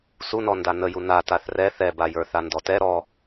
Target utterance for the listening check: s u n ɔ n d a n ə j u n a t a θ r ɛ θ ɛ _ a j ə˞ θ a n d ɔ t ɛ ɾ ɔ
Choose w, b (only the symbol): b